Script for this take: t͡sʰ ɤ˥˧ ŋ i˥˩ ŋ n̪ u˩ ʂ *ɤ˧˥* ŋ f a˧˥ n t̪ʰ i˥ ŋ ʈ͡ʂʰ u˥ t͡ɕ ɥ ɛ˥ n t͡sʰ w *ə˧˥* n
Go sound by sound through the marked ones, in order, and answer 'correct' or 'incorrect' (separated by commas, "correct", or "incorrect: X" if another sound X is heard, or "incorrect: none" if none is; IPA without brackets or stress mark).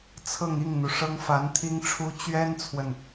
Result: incorrect: ɤ˥, incorrect: ə˨